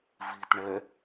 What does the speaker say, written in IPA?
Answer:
v i t ɳ ɛ

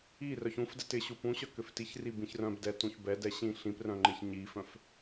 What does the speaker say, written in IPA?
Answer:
i r œ ç ũ f d ɛ t ɪ ɕ u p ũ ɕ œ k ʏ f t i ç r i b ĩ ç r œ̃ b d ɛ t ũ ç b ɛ d ɛ ɕ ĩ ɬ ĩ p r œ̃ ŋ͡ǃ ɪ ç ɲ i f œ̃ f

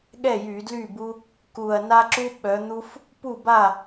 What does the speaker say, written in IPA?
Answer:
ɠ ɛ˥˩ j y˧˩˧ d l y˥˩ b u˦ | k u˨˩ ɐ̯ n a˦ ǁ u˦ ɓ œ˨˦ n̪ u˦ f | p u˥˩ b a˥˩

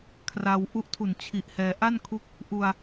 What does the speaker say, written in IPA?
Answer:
kʰ r a˧ w ʔ u˦˥ ʔ tʰ u˨˩ n t͡ɕʰ i˨˩ ʔ h ɛː˧ ʔ a˥˩ n kʰ u˦˥ k̚ | ʔ u˧ a̯

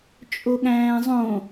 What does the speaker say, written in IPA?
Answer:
t͡ʃʼ o ɠ æ̃ː zˤ õ

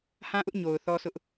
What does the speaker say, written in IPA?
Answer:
h ã˦ ʔ ʊ˦ ʔ ɲ o˨ ʊ̯ θ ɔ˦ s ʊ˦ ʔ

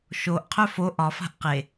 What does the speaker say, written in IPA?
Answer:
ʃ o ʔ qʰ œ f o ʔ ɒ f a̤ ʔ q e

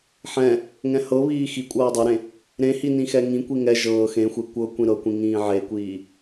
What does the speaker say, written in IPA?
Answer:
ħ ɛ̃ | ŋ ɛ̃ h ɤ β iː x i kʷʼ ɤː dˤ ɤ ɾ ẽ | ɾ ẽ h i n ĩ x ɛ ŋ ĩ kʷ i ŋ ɛ ʒ ɤː x ẽ xʷ e kʷ ɤ kʷ ĩ ɾ ɤ kʷ ĩ ŋ ĩː ʕ e kʷ iː

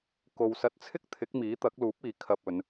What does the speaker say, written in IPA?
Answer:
k o˨ w s ɐ˧ t̚ t͡sʰ ɪ˥ k̚ t̪ʰ ɪ˨˥ k̚ m iː˨˥ t̪ ɐ˨˥ k̚ l uː˨˥ p̚ iː˨ kʰ ɐ˧ p̚ ɵ˨˧ n

